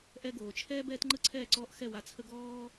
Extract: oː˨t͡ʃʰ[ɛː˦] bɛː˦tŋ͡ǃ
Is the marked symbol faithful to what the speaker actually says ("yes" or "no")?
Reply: yes